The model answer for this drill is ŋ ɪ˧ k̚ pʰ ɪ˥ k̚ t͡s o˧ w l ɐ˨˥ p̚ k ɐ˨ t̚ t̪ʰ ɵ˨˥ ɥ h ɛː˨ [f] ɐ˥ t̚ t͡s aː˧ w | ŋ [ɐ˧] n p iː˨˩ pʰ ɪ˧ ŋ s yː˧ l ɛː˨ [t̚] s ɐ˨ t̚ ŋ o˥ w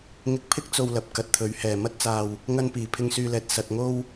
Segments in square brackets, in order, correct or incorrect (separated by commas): incorrect, correct, correct